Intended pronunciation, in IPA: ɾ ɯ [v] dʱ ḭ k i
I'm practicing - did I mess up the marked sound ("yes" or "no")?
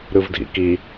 no